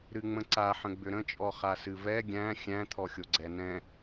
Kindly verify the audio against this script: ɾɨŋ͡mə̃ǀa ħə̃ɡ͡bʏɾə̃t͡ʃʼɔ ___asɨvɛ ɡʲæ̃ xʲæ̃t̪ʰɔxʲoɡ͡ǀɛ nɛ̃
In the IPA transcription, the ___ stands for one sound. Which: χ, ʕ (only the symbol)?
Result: χ